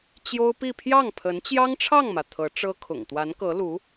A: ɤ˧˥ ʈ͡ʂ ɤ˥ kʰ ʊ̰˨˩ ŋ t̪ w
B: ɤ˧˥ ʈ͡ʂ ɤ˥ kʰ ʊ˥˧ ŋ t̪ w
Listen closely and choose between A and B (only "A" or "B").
A